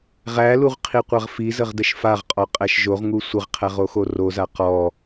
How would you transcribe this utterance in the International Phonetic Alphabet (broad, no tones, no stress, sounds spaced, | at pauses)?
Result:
ʁ æ l u ʁ qʰ i qʷ a ʁ f i z ə ʁ d ə ʃ f a ʁ qʼ ɔ qʼ æ ʃ ʒ o ʁ ŋ u sʷ ə ʁ qʰ æ ʁ o x o r o z a q ɔ